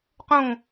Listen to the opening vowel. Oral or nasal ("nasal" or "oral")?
nasal